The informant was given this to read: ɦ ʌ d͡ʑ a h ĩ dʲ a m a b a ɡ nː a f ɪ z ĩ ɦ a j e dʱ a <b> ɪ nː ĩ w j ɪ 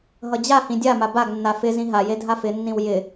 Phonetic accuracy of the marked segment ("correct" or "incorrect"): incorrect